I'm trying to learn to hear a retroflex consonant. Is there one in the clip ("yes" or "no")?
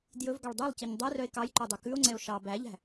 yes